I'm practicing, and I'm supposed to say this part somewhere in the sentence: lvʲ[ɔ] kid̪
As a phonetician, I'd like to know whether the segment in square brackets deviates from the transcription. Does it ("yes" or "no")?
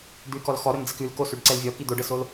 no